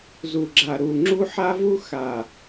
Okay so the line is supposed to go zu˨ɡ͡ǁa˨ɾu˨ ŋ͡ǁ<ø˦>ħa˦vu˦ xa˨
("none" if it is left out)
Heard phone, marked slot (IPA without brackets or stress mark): u˦